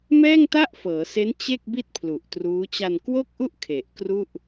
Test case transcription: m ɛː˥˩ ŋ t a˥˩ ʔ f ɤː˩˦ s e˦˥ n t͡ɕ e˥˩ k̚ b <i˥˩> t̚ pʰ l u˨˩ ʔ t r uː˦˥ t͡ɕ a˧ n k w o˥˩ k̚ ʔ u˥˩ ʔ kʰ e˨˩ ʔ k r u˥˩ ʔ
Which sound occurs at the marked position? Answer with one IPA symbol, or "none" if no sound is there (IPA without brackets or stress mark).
i˥˩